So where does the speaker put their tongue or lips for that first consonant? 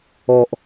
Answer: throat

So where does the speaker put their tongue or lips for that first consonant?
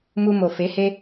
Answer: lips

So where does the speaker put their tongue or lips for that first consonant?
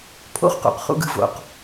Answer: lips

